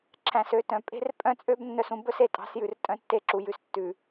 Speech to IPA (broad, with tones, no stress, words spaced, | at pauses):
ǁʰæ̃˨sø˦˨tœ̃˨ pʼe̤˦rpʼœ̃˦t͡sʼø˦b nːœ˦sũ˦ bɵ˦se˨tʼɑ̤˨˦sjʉ˨r tʼœ̃˦tːe˦ǁu˨jʉ˨s tːʉ˨